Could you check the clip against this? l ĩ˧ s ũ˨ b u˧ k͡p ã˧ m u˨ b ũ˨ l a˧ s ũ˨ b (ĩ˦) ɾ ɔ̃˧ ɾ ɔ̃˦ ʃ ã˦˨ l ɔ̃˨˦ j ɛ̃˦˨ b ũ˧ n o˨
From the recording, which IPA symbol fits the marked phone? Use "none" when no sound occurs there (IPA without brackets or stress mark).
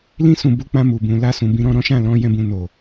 ĩ˧